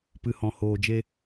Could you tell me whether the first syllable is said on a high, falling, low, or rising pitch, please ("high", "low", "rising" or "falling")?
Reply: low